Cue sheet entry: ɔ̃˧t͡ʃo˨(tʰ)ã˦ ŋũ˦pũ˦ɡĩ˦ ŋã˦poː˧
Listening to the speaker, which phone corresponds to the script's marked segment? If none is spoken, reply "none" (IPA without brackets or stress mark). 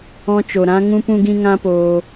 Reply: ɾ